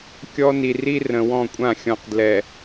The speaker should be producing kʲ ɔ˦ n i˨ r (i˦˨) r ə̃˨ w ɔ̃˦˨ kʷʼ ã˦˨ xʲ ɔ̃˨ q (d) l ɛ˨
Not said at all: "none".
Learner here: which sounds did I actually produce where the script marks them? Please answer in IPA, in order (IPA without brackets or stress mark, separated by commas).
i˦, d